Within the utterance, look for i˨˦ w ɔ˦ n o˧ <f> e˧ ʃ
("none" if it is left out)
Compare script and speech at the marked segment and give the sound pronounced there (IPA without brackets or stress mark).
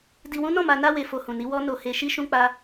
h